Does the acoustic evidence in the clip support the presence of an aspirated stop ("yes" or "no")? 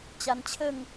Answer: yes